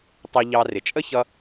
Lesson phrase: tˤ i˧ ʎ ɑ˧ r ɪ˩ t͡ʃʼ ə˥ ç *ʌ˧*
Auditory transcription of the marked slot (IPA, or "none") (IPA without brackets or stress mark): ʌ˧